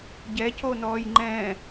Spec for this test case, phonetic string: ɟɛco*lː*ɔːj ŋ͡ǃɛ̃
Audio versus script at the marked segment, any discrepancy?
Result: yes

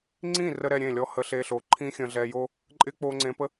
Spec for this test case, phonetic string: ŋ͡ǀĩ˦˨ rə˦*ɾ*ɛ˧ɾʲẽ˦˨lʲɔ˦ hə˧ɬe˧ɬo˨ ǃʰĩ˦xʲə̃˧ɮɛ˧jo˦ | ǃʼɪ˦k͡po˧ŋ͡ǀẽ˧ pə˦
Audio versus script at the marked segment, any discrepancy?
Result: no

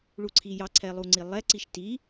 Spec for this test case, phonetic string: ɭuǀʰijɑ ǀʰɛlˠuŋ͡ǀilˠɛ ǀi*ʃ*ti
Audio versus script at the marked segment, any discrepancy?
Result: no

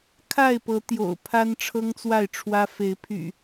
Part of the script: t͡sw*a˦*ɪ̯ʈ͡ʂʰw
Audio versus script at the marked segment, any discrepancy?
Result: yes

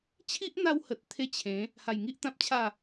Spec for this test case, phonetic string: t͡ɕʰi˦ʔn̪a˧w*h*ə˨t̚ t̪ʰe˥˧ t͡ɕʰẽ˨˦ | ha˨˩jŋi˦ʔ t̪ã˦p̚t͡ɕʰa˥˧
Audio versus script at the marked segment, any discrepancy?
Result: no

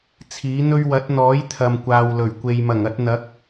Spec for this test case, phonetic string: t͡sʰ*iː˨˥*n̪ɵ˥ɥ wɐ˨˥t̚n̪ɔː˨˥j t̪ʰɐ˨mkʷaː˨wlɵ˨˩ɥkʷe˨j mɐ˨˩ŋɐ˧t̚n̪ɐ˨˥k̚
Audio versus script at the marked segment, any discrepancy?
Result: no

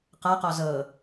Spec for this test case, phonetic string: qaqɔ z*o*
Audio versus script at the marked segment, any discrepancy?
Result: yes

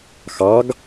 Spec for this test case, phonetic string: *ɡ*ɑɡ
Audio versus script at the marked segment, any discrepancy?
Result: yes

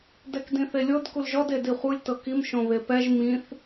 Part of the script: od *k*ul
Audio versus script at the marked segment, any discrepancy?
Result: no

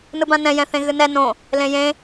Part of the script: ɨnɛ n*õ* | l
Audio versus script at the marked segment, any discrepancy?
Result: no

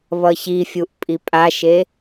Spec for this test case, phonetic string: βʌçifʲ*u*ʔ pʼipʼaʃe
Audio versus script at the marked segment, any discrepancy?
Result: no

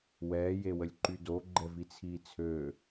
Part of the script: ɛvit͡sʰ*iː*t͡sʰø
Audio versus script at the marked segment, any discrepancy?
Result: no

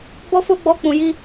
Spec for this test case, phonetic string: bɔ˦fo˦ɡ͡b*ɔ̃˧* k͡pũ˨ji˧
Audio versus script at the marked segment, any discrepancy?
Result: yes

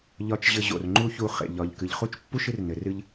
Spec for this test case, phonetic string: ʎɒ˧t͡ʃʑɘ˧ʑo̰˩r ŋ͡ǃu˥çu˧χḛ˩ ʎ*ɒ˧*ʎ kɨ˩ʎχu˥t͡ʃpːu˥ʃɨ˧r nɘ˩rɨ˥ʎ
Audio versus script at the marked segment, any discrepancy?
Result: yes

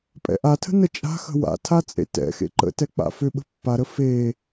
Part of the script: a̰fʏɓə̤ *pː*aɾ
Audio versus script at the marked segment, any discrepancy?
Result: no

